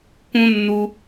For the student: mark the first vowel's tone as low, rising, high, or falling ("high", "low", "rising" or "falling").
high